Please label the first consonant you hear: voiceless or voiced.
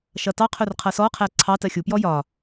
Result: voiceless